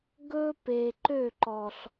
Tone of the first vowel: high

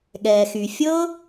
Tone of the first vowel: low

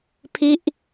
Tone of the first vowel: falling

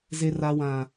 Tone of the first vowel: high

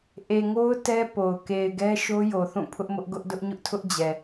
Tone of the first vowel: low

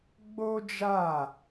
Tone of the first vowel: high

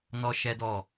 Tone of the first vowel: high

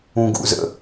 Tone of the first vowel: low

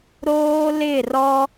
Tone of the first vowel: high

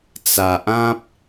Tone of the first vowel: low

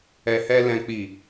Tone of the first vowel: low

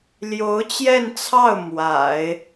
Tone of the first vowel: rising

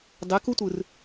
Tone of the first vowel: rising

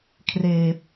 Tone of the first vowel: low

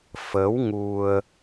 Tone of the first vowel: rising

